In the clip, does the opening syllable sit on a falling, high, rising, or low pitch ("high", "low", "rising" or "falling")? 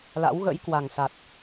rising